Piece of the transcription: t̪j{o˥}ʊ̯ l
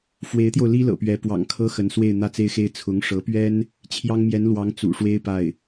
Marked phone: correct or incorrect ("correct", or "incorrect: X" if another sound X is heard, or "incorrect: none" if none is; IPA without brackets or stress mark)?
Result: incorrect: o˧